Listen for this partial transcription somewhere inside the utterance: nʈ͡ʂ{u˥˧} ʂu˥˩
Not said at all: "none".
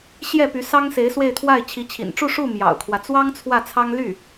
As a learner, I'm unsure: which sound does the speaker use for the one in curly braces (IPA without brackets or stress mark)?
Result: u˥˧